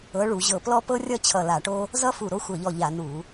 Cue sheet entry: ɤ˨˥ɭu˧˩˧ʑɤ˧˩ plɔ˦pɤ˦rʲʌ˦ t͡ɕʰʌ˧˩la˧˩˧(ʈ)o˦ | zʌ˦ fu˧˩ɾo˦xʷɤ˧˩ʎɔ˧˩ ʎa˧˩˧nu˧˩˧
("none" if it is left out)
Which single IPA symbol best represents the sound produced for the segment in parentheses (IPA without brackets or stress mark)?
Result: ʈ